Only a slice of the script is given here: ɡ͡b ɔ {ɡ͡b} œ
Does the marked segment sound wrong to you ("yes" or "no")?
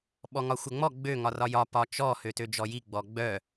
no